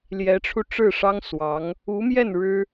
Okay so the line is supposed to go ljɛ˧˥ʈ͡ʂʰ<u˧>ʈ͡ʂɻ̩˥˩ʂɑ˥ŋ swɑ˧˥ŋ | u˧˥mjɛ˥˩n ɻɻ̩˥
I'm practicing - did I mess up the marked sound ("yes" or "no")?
no